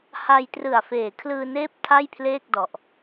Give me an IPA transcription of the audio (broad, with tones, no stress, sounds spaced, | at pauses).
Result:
h a˧ j t r ɯ˨˩ a̯ f eː˨˩ kʰ l ɯː˧ n eː˦˥ p̚ tʰ a˥˩ j pʰ l eː˥˩ k̚ d ɔ˨˩ ʔ